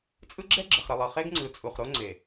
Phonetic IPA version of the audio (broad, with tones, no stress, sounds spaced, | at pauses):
t͡sʼ ɯ˦ ɡ͡ǁ ɛ˦ ɡ͡ǁ ɘ˨ χ ɾ ɘ˨ lˠ ɤ˨ χ e˦ ɡ ŋ͡ǀ ɯ˨ t͡sʼ u˨ χ ɾ o˦ ŋ͡ǀ e˨